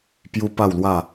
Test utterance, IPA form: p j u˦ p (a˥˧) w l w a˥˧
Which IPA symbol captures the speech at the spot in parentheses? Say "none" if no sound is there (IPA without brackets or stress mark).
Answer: a˥˧